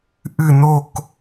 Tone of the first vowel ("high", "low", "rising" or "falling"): falling